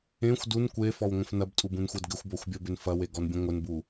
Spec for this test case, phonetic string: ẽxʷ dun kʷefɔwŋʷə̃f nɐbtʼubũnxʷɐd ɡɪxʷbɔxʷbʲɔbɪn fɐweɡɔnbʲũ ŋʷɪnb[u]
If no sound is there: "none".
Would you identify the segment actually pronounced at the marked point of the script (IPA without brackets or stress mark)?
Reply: u